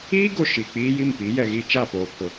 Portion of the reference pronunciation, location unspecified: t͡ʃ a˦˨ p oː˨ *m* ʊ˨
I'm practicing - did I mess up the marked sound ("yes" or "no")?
yes